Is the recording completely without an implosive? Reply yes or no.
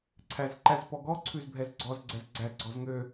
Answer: yes